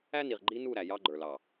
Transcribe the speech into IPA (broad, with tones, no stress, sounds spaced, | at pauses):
æ˦ n i˨ ʁ ɡ͡ǃ i˦ n u˦˨ ɾ æ˨ j ɑ˦ ɡ͡ǃ ə˞˨ l ɑ˨